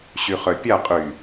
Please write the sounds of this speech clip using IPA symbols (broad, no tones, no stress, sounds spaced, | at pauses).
ɕ y χ œ pʲ a qʼ y